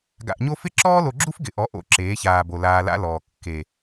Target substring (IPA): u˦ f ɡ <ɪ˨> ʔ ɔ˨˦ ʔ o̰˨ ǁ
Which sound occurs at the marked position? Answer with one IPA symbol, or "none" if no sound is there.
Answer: ɪ˨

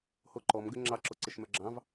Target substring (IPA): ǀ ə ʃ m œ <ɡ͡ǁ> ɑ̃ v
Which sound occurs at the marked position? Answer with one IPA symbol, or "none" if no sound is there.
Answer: ɡ͡ǁ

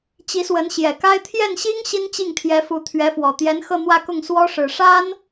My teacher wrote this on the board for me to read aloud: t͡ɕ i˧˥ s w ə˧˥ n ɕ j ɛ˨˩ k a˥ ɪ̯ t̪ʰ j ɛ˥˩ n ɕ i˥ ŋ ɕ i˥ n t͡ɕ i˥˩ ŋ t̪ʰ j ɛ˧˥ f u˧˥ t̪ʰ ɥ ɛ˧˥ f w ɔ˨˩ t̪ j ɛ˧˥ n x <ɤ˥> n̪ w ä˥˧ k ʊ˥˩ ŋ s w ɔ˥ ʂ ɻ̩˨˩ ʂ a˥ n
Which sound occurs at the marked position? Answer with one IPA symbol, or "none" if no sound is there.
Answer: ɤ˥˧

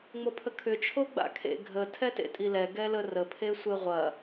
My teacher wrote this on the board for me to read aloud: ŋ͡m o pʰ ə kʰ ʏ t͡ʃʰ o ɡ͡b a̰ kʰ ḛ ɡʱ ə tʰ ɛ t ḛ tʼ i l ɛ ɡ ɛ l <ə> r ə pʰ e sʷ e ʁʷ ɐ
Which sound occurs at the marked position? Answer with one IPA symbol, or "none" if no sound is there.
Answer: ə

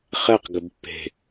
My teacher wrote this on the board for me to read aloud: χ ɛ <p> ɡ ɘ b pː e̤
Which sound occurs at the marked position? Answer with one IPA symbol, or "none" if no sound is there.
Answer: q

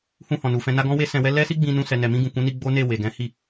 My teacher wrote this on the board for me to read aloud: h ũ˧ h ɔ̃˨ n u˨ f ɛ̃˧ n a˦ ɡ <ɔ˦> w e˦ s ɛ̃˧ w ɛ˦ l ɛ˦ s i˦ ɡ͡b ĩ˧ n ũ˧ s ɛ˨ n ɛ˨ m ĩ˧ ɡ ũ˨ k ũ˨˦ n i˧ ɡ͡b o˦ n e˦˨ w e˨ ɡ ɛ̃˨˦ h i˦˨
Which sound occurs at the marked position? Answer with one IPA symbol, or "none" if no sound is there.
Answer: ɔ̃˦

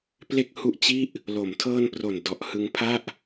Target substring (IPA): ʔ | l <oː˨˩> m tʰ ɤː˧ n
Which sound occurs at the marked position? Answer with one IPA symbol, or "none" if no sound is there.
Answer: o˨˩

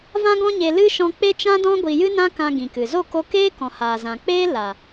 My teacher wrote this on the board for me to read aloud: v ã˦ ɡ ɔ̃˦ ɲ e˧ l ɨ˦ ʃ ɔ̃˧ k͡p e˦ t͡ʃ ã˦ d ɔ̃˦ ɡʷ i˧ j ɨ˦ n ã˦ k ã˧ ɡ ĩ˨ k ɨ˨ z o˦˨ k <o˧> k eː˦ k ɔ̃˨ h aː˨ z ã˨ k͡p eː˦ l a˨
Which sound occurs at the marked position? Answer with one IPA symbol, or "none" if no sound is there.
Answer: o˧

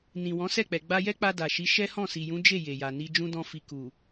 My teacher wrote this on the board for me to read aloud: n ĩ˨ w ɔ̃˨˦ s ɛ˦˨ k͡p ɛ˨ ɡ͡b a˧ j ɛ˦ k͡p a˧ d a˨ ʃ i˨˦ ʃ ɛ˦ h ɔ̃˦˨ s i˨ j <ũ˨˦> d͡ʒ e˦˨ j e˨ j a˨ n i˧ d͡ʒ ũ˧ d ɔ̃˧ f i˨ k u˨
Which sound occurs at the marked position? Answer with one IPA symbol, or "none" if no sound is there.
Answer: ũ˨˦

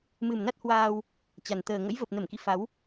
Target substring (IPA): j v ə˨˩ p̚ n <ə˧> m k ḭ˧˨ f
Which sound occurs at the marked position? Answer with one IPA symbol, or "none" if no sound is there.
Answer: ə˧˩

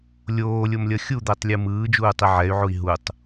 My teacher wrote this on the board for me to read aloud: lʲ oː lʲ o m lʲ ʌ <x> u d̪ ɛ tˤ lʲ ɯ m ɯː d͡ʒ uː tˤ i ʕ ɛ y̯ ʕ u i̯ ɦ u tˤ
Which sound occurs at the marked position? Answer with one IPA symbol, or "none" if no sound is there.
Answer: xʲ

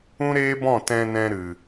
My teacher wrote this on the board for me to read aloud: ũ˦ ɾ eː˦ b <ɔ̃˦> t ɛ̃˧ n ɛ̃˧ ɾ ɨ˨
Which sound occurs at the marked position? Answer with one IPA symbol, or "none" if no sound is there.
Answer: ɔ̃˦˨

